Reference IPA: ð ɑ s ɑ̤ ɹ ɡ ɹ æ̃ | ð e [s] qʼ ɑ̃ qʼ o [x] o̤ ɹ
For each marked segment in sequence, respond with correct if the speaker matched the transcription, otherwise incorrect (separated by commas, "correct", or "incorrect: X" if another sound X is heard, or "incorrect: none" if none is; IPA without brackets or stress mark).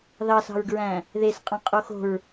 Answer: correct, correct